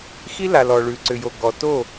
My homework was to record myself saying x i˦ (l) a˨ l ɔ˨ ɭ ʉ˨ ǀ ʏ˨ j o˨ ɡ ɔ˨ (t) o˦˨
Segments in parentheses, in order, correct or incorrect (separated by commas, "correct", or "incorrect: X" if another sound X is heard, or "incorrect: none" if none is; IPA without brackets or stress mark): correct, correct